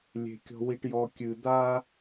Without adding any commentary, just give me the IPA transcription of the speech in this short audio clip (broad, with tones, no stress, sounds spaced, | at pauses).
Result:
lʲ e̤˨ kʲ ɔ̤˨ w i˨ ʈ j ɔ˨ kʲ ɨ˨ d̪ a˦